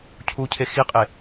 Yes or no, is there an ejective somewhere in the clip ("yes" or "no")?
yes